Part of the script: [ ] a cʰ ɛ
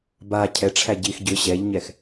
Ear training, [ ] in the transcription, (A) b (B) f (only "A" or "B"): A